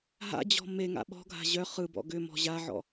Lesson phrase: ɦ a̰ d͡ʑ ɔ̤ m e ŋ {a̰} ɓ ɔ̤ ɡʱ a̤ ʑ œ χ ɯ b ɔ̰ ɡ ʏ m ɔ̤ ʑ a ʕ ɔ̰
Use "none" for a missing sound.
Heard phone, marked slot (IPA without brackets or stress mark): a̰